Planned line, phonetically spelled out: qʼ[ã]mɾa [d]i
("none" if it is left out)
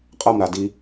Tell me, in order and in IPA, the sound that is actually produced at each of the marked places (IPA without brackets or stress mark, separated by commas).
a, d